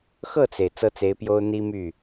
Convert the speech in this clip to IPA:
xɤ˥˩t͡se˩ɪ̯ t͡sɤ˥t͡se˧˥ɪ̯pjo˥ʊ̯ n̪i˥my˥˩

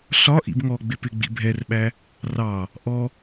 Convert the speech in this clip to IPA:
ɬɒ ʔḭbŋɔɡ͡bɪ pɪɡ͡bḭ bʱɛrɓæ | rɑ | ʔɔ

